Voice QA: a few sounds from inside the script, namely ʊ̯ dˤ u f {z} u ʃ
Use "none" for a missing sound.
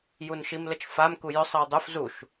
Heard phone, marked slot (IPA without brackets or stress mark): z